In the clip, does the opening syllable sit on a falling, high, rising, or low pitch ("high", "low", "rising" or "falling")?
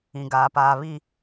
low